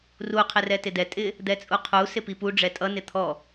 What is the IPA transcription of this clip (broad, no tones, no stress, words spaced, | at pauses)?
ru qʰɪrɛtɪdɛ tʼɪ | d̪ɛt͡sʼuqʰu sɪpipu ɖ͡ʐɛtʼʌ nɪt̪ʰɔ